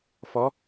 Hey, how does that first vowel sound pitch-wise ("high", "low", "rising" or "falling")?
rising